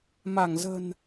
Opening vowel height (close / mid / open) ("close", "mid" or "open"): open